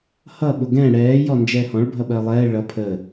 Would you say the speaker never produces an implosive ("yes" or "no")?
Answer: no